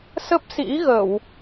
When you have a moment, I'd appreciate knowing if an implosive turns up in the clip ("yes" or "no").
no